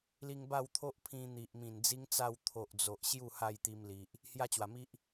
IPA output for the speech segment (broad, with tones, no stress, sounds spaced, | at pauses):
l i˧ ŋ b a˥˧ w t̪ʰ o˦ ʔ pʰ ĩ˧ n̪ i˨ ʔ m ĩ˨˩ n d͡z i˦ ŋ t͡s a˥˧ w t̪ʰ o˨ ʔ d͡z o˨ ʔ ɕ j u˥˧ h a˥˧ j t̪ i˧ m l i˨ ʔ | h j a˦ t͡ɕ w a˨˩ m i˦ ʔ